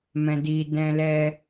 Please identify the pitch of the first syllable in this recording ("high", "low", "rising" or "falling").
low